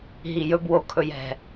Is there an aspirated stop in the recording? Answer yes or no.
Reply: yes